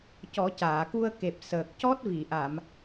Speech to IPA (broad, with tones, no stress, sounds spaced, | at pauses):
c ɔ˨˩˦ c aː˨˩˨ k u˧ ə̯ k e˨˩ p̚ s əː˨˩ k̚ c ɔ˦˥ t̚ v i˨˩˨ ʔ a˨˩˨ m